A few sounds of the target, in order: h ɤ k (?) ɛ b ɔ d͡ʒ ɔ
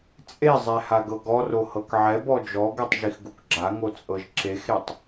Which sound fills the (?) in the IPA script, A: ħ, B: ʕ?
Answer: B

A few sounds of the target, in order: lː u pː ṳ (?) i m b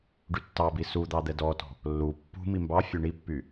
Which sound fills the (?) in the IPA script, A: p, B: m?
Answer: B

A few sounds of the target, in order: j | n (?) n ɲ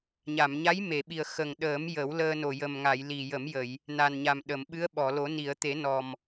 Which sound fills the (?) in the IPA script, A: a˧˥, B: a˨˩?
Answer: B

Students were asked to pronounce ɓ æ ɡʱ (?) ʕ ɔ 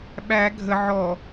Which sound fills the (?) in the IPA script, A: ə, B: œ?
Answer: A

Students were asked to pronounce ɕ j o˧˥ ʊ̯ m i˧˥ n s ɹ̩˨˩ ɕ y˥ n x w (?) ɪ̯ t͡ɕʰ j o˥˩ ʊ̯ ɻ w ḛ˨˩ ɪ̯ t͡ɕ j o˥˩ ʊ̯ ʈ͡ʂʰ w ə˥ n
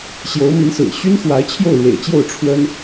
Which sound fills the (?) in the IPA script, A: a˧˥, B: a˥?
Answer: A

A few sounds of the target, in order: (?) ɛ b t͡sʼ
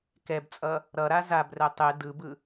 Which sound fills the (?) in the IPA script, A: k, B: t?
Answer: A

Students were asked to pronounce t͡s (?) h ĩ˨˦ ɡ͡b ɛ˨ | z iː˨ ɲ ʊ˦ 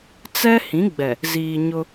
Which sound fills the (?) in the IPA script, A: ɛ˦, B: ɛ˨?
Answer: A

